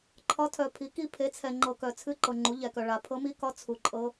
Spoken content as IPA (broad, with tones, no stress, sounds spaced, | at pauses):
ǃʰ ɒ˧˥ tʰ œ˨ pʰ i˩˥ k i˧˥ pʰ e˩˥ t͡sʰ ɛ˨ ŋ͡ǃ ɤ˨ k œ˨ t͡sʰ ɨ˧˥ ǃ ɤ˨ ŋ͡ǃ u˩˥ ʎ ɛ˨ k œ˨ ɭ a˨ pʰ ɤ˧˥ m i˧˥ k ɒ˧˥ t͡sʰ u˨ ǃʼ ɤ˧˥